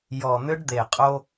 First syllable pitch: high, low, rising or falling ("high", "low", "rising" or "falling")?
low